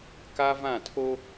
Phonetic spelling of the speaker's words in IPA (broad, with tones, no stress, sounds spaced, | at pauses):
k a˦ v ã˦˨ tʰ o˦